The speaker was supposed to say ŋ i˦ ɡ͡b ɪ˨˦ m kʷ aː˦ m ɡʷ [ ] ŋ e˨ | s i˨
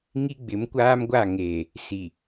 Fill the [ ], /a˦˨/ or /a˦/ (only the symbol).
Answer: a˦˨